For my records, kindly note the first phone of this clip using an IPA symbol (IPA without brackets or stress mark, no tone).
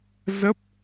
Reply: z